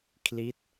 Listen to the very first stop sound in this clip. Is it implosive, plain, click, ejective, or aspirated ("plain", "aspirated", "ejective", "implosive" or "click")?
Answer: aspirated